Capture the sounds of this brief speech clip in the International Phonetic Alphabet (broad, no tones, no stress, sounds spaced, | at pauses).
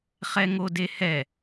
χ ɛ ŋ o d e h ɛ